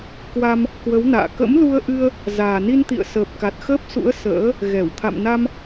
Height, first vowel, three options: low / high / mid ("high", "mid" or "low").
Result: low